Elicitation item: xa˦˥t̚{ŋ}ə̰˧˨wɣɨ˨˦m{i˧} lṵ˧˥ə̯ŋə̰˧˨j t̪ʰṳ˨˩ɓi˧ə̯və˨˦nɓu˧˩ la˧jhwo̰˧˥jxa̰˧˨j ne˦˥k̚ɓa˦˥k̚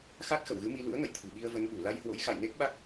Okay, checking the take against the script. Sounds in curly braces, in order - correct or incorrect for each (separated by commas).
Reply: incorrect, correct